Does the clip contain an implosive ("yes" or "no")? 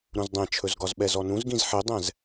yes